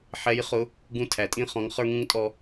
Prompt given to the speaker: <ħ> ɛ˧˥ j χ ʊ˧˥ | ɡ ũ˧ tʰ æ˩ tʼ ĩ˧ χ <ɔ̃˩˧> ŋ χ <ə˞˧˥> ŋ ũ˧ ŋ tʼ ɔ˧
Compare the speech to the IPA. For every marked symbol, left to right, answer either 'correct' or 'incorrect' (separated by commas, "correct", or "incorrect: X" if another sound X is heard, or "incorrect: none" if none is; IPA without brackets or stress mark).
correct, correct, incorrect: ə˞˧